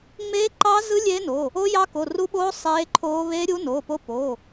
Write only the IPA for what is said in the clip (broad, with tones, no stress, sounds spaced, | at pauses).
ŋ͡m eː˦˥ ǃ ɑ˦˥ z ɯ˦˥ lʲ eː˦˥ n o˩˧˩ | o˦˥ j ɑ˦˥ k o˩˧˩ r u˦˥ ɓ oː˦˥ sˤ eː˦˥ ǃʰ oː˦˥ β eː˦˥ ɾʲ uː˦˥ n oː˩˧˩ p o˦˥ p o˩˧˩